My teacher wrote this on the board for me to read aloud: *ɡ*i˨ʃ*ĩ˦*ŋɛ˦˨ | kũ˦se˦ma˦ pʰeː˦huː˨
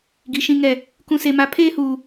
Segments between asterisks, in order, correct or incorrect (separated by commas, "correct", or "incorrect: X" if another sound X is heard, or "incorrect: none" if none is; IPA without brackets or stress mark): correct, correct